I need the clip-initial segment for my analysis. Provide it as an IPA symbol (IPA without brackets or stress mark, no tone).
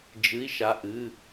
d͡ʒ